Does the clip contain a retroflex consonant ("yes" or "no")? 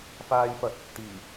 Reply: no